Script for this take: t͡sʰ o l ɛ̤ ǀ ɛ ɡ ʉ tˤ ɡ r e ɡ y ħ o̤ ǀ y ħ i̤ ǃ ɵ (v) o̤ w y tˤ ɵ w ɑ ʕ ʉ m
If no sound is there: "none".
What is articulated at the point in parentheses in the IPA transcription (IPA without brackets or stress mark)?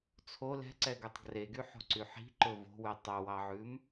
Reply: v